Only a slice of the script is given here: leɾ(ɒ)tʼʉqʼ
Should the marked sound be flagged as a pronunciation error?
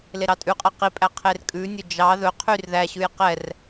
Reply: yes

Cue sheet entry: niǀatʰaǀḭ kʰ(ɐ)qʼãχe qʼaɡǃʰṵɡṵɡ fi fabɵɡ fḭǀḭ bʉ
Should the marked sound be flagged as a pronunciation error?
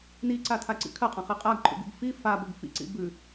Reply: no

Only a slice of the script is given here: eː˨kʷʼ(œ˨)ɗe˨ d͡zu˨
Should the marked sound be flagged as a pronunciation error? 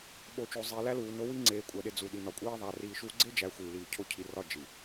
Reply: yes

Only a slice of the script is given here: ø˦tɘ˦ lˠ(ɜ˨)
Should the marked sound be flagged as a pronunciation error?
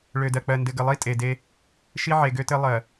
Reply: no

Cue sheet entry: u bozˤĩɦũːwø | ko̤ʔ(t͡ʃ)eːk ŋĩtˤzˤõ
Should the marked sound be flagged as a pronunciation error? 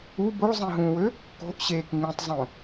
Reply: yes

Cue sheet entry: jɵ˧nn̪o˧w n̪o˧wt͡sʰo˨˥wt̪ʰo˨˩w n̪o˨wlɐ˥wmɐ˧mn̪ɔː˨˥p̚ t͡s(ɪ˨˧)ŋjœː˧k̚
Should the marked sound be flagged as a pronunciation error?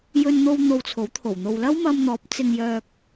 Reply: yes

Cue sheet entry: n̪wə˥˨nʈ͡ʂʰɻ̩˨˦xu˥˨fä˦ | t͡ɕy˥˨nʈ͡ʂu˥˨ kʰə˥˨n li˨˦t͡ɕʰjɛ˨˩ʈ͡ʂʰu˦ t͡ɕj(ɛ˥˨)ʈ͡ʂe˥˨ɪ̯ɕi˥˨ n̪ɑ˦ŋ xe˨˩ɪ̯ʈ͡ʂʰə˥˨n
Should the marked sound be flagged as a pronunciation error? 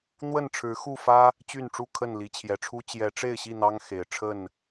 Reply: yes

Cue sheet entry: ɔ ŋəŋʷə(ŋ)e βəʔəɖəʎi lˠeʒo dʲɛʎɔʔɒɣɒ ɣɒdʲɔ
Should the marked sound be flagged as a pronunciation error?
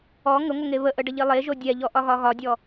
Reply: no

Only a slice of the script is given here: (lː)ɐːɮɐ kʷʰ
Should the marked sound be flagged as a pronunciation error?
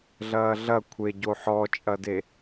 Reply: yes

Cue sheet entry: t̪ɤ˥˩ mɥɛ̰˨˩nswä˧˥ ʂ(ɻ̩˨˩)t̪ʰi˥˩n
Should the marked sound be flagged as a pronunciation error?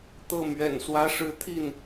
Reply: yes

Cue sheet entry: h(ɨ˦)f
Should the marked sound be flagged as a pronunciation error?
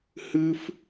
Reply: no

